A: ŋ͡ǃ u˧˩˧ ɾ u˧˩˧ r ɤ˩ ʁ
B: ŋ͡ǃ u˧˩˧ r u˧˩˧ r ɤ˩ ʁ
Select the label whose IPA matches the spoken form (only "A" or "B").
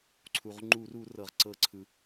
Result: B